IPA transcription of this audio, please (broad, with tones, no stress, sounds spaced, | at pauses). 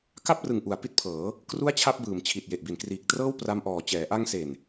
k a˥˩ p̚ r ɯ˨˩ ŋ ʔ u˩˦ a̯ p i˦˥ t̚ pʰ ɤː˩˦ | k r u˥˩ a̯ t͡ɕʰ a˥˩ p̚ b ɯː˨˩ m t͡ɕʰ i˨˩ t̚ j e˨˩ ʔ b i˩˦ n k r iː˨˩ k̚ t r ɤː˥˩ w p r a˧ m ʔ ɔː˨˩ t͡ɕ ɛː˩˦ ʔ a˧ ŋ s e˨˩ n